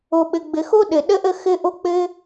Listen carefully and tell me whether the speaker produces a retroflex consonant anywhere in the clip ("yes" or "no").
no